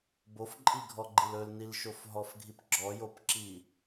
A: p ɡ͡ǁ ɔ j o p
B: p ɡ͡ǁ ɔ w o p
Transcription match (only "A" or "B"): A